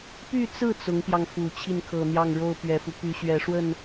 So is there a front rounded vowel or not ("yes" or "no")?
yes